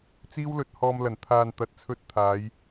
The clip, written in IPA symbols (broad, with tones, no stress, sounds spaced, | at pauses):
t͡s iː˥ w l ɵ˧ t̚ h ɔː˧ m l ɐ˨˩ n t̪ʰ aː˨ n t̪ ɐ˨ t̚ t͡sʰ ɵ˧ t̚ t̪ʰ aː˨˧ j